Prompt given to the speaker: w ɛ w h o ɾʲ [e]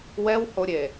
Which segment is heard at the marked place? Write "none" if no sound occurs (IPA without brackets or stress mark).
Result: e